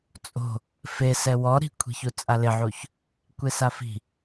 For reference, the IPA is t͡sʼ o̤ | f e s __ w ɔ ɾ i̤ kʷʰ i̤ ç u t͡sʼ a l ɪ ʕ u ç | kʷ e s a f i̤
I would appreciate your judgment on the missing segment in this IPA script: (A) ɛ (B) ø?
A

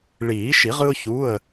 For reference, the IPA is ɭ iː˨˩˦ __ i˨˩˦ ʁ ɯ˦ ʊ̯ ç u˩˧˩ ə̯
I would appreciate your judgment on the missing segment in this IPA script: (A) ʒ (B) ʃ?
B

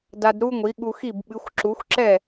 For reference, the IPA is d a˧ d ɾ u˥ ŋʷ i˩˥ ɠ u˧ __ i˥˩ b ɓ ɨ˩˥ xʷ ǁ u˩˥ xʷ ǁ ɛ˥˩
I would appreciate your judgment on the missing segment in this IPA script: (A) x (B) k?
A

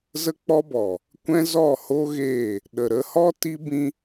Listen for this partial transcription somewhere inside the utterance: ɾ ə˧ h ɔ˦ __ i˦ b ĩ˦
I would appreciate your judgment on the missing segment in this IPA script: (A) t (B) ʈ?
A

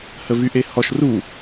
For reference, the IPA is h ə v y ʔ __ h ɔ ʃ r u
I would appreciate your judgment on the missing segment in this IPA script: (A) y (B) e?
B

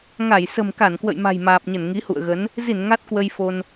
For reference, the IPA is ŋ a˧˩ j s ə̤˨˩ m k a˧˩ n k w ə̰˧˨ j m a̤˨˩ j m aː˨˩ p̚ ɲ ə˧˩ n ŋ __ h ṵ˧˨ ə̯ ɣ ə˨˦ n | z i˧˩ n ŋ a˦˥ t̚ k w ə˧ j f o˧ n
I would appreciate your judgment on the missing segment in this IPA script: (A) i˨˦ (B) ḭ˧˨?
A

